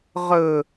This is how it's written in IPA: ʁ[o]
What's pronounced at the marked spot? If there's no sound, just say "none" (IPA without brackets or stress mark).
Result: ɵ